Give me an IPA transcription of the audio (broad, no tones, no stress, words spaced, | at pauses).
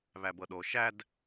βæbɤɗo ʃæd